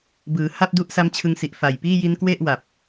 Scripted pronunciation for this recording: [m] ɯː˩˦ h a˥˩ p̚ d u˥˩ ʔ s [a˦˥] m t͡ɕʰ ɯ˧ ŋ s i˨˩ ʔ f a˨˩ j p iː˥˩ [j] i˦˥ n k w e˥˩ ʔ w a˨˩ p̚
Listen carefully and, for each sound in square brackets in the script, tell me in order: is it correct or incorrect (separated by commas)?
incorrect, correct, correct